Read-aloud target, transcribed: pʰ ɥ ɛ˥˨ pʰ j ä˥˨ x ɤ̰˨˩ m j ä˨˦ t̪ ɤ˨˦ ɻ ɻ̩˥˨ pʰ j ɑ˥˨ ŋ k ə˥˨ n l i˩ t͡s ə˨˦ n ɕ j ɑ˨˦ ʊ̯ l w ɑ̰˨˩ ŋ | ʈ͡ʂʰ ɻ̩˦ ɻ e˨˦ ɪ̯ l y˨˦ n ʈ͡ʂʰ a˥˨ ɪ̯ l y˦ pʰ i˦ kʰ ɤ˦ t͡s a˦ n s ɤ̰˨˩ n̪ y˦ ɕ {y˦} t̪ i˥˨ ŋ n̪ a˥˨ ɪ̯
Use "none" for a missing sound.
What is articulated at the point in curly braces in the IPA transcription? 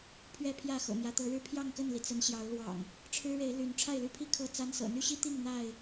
i˦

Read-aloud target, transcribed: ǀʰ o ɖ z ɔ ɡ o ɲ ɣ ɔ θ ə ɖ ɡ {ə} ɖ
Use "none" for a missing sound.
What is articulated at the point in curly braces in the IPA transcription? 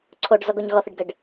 ə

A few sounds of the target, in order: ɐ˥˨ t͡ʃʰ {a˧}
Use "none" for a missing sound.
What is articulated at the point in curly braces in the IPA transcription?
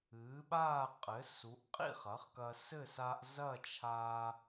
a˧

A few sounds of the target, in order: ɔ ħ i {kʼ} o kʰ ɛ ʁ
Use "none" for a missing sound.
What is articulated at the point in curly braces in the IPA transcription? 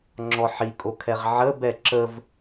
kʼ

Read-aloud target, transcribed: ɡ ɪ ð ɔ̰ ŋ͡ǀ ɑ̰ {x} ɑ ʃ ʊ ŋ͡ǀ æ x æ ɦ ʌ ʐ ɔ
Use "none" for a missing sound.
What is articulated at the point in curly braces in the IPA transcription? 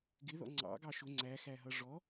ɡ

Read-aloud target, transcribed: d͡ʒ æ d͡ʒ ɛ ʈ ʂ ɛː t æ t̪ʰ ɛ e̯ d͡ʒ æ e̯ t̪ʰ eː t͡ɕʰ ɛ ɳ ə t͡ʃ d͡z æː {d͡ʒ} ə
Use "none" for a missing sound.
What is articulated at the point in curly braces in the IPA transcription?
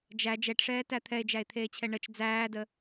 d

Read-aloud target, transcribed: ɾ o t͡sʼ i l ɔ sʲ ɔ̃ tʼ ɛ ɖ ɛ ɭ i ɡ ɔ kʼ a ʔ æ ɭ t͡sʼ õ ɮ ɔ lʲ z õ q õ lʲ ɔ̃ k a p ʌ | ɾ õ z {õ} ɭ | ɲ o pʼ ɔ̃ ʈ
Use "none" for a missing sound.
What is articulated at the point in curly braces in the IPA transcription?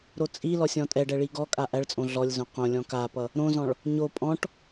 ɔ̃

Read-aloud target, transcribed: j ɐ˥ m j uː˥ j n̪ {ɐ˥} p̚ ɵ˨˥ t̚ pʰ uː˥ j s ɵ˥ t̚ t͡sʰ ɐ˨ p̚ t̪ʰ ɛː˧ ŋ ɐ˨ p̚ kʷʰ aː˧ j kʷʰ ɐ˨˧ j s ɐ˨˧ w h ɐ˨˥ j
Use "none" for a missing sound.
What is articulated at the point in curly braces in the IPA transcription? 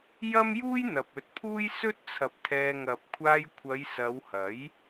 ɐ˨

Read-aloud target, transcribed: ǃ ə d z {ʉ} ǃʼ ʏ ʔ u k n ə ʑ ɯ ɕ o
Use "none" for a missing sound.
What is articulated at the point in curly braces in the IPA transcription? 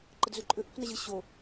ʉ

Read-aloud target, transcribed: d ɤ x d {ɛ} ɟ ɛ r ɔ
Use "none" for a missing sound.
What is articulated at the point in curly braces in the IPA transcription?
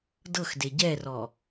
e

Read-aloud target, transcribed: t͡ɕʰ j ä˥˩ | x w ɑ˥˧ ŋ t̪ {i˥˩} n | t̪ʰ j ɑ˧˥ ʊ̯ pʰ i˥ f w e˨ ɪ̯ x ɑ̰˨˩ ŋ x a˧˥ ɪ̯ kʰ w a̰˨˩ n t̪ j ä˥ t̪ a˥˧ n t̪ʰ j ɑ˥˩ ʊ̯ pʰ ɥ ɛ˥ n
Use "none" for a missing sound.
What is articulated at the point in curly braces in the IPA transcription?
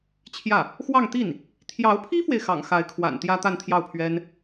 i˥˩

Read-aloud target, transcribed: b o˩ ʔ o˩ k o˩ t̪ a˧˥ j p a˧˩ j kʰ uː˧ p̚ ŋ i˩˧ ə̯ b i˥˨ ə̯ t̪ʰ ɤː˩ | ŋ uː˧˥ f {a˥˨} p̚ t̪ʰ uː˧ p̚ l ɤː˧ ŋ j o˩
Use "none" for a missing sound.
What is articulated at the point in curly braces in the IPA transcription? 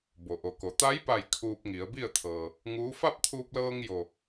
a˥˨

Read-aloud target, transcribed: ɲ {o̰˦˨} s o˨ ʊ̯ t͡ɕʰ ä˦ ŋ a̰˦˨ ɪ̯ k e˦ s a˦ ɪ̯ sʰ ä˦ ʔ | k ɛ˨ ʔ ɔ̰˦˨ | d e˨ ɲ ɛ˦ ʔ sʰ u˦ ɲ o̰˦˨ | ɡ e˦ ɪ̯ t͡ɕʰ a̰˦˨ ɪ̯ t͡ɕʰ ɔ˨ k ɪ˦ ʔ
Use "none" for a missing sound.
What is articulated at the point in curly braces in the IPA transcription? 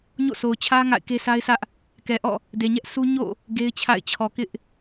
o̰˦˨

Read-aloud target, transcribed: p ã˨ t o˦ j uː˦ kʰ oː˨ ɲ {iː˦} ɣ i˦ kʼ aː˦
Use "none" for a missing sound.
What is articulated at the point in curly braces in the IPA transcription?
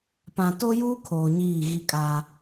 iː˦˨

